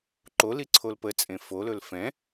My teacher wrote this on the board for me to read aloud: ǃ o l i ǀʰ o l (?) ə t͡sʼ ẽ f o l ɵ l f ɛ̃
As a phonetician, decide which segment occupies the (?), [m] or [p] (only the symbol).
p